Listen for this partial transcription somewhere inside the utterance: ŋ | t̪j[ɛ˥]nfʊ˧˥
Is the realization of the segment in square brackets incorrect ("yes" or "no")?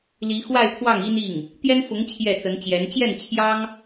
no